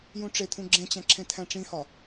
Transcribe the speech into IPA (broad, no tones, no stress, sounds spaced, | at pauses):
j ũ ʈ͡ʂ e t̪ʰ ũ ɡ͡ǁ ẽ t͡ɕ æ̃ ǁʰ ẽ t̪ʰ æ̃ ʈ͡ʂ ĩ h ɒ